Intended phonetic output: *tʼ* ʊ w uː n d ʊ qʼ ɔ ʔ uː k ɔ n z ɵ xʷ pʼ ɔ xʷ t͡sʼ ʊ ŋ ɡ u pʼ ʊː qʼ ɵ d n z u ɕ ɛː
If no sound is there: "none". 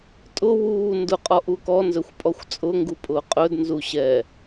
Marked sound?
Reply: tʼ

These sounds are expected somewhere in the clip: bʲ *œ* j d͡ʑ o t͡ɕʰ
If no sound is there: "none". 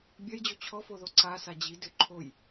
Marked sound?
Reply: œ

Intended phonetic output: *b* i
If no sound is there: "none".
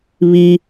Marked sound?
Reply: β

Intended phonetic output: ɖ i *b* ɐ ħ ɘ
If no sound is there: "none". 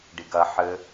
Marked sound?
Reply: ɡ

